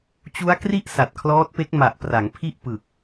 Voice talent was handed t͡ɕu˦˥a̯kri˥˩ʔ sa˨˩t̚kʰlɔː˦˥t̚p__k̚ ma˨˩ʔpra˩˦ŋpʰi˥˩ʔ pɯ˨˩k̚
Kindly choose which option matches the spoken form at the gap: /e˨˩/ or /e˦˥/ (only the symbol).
e˦˥